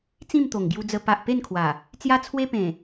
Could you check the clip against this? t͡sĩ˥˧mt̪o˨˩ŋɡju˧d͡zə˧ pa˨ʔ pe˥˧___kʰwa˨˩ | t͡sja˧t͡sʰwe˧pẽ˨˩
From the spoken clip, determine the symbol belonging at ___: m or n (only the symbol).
n